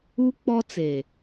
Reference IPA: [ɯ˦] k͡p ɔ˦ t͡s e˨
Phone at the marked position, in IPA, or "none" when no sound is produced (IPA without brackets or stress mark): u˦